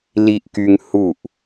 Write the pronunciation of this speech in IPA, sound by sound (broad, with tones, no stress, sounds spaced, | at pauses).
l i˧ ʔ k y˧ ŋ h u˧˩ ʔ